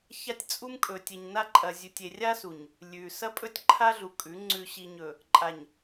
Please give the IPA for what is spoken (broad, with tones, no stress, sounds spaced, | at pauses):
ç a˦ tʲ t͡sʼ u˦ m kʼ ɵ˨ tʲ e˨ ɲ n a˦ ǃʼ ɐ˨ zʲ ʉ˨ tʲ e˨ rʲ a˦ s u˨ ɲ | lʲ ʉ˨ s ɐ˦ pʼ ɵ˦ tʲ ǃʰ a˦ ɮ u˨ kʼ ʉ˨˦ ŋ͡ǀ ʉ˨ ɕ i˨ ɲ ɵ˨ | ǃʼ a˨ ɲ